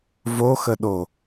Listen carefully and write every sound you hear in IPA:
v o x ə ɗ o

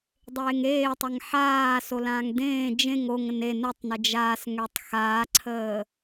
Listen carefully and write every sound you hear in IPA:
dˤ eː ŋ eː tˤ ə ŋ ħ aː s o l ãː ŋ d ẽː d͡ʒ ẽ ŋ o ŋ ə̃ n e n u tˤ n ɪ d͡ʒ aː s ŋ ø tˤ x aː ǀʰ əː

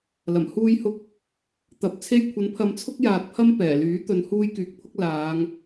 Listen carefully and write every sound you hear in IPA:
l ɐ˨˩ m h uː˧ j h ʊ˧ k̚ | t̪ ɐ˨˥ p̚ t͡sʰ e˧ j kʷʰ ɐ˨˥ n pʰ ɐ˨˧ m t͡sʰ ʊ˥ k̚ j aː˨ t̚ pʰ ɐ˥ m p ɛː˨˩ l yː˨˥ t̪ ɵ˨˧ n h uː˥ j k yː˧ k̚ pʰ ʊ˥ k̚ l aː˨˧ ŋ

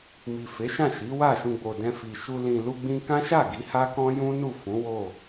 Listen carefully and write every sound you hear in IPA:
m i˨ f e˨˦ ʃ ã˦˨ ʃ i˨˦ w a˦˨ ʃ ũ˧ ɡ͡b o˨ d ɛ̃˧ f i˨ ʃ u˧ l ĩ˨ l u˧ ɡ͡b ĩ˧ k ã˦ ʃ a˦˨ ɡ i˨˦ h a˦ k ɔ̃˦ j ũ˦ n u˦˨ f ũ˨˦ w o˦˨

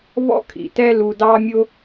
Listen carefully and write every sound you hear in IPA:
β ɔ̰˦ kʰ ḭ˨ t ɛ˦ l u˧ d ɑ˦ mʲ ʊ˦

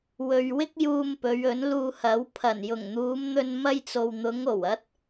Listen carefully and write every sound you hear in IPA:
w ɵ˨ ɥ w ɪ˧ k̚ j uː˧ m p ɵ˨˧ ɥ ɵ˨˥ n l uː˧ h ɐ˨˥ w pʰ ɐ˨˩ n j ʊ˨˩ ŋ n̪ uː˨˧ m n̪ ɵ˧ n m ɐ˥ j t͡s o˧ w n̪ ʊ˨˧ ŋ o˨˩ w ɐ˧ t̚

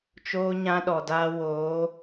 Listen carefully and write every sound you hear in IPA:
t͡ʃ oː˦ ɲ ã˦ ɗ ɔ˨ d aː˦ w oː˨˦

